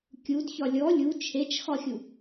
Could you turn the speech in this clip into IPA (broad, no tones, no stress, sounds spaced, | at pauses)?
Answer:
kʲ u d ç ɒ lʲ ɔ lʲ u t͡ʃʰ e t͡ʃ x ɒ xʲ u